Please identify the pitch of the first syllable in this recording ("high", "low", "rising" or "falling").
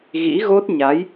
rising